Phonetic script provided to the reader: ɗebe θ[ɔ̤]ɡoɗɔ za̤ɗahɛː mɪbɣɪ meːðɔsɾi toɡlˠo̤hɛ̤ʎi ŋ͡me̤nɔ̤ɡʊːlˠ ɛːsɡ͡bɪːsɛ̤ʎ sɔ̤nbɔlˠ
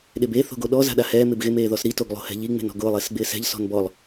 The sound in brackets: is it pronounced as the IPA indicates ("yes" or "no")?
no